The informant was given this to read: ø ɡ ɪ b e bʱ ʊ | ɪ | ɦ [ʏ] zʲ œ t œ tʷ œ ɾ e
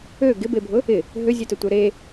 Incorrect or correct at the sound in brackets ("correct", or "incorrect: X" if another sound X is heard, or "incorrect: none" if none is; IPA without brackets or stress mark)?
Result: correct